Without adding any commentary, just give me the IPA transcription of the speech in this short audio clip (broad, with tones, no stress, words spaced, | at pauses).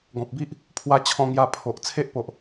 ɡɔ̃˨p̚bi˦ʔ | pʰwa˧t͡ɕʰɔ̃˧ŋja˧ pʰo˨ʔ t͡sʰe˦ʔpo˨ʔ